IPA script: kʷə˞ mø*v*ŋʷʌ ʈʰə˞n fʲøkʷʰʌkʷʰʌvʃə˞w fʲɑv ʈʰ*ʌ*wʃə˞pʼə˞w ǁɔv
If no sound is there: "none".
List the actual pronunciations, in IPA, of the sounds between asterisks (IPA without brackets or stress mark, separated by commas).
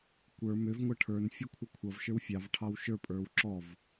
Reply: v, ɑ